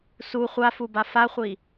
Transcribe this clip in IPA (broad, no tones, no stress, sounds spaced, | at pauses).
s u χʷ a f u b a f a χʷ i